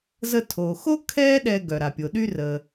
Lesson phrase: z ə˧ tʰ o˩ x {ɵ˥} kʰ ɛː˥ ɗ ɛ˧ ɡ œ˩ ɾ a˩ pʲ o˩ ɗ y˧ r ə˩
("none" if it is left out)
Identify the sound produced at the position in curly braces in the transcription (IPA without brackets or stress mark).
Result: o˥